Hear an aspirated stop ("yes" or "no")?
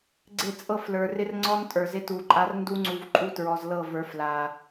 no